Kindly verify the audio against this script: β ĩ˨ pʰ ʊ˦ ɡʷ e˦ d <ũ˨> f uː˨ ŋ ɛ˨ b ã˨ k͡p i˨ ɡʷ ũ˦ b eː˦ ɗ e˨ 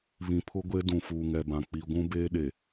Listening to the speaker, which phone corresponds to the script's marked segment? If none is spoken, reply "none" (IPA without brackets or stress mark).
ũ˨